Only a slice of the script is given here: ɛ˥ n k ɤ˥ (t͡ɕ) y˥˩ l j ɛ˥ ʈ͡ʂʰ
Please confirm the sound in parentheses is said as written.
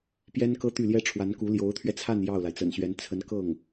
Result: no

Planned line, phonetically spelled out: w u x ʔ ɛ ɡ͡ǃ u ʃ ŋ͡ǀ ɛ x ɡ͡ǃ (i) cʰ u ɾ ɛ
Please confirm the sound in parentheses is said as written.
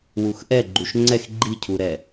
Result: yes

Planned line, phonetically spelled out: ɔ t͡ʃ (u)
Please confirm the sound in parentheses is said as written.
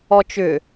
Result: no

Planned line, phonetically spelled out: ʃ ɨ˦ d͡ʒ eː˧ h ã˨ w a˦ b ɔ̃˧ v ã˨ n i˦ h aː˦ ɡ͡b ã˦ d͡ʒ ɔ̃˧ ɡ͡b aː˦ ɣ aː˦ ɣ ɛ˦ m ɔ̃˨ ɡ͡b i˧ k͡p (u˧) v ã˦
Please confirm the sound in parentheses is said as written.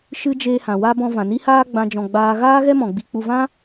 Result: yes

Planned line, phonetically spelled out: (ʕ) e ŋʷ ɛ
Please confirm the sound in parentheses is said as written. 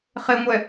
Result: no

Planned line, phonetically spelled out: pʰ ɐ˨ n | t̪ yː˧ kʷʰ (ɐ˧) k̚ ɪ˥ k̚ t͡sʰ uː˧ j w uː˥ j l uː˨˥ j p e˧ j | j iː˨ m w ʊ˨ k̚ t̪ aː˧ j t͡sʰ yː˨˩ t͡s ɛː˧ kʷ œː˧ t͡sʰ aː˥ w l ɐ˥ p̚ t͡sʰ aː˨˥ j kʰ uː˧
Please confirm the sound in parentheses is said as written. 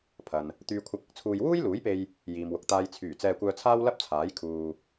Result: yes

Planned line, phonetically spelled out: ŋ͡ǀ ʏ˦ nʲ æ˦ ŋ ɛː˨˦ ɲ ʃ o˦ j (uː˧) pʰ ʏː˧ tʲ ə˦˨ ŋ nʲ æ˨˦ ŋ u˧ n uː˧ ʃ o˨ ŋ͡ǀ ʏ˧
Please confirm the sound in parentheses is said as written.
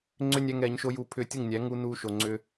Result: yes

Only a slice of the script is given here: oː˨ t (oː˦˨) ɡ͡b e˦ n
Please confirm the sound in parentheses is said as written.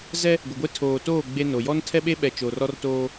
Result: yes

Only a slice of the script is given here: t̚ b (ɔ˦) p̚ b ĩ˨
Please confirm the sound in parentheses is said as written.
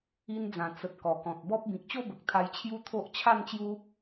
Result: yes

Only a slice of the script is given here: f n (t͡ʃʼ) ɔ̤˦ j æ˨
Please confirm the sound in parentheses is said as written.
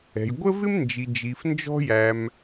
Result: no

